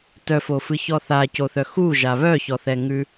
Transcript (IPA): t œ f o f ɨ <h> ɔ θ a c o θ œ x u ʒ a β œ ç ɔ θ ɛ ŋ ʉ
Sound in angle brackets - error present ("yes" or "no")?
yes